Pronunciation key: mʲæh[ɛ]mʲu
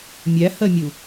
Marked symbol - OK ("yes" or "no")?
no